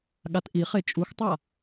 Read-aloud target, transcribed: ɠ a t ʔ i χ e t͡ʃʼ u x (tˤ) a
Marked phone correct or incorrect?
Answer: correct